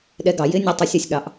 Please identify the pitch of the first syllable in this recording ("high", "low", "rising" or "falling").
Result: rising